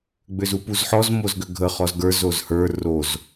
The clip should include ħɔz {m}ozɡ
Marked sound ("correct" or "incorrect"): correct